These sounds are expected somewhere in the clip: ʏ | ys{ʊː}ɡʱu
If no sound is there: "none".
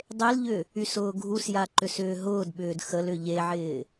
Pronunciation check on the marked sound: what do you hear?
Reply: ʊː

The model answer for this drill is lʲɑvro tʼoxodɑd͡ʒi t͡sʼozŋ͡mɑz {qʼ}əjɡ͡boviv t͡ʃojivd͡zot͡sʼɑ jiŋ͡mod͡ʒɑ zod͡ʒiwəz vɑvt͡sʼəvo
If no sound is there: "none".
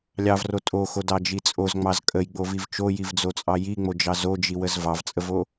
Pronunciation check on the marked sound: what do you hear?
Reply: kʼ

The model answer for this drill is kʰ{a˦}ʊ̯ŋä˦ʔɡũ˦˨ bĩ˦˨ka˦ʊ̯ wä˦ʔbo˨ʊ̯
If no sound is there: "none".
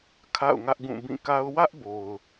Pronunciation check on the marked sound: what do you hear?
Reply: a̰˦˨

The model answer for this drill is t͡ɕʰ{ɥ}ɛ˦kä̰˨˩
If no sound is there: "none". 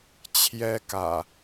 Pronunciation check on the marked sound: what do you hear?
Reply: j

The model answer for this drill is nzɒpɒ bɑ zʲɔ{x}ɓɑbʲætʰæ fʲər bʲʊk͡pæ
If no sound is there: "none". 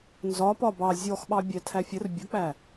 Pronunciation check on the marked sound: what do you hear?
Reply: x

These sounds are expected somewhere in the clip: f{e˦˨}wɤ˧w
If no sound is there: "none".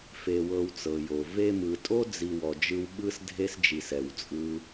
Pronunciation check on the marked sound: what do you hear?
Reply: e˧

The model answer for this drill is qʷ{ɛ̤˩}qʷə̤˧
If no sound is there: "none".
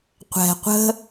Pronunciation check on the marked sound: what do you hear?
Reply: ɛ̤˩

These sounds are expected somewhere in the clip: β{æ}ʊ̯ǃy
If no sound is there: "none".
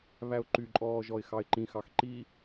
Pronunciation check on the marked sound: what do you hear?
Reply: æ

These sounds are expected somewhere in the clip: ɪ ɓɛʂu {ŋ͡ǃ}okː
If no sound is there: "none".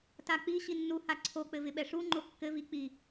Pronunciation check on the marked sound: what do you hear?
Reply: ŋ͡ǃ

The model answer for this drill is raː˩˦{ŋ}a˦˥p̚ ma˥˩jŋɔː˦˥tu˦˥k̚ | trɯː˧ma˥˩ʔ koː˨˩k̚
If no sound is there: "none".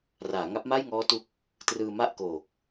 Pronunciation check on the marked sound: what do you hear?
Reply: ŋ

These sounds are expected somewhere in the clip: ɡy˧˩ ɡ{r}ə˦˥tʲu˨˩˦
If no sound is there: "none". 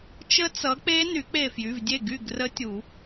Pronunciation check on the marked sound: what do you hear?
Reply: r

